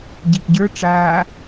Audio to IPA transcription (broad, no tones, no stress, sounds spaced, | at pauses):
ɟ i ʔ ɟ ə˞ ʈ͡ʂ aː